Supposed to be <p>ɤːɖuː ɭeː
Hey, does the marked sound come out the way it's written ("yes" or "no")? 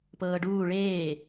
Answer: yes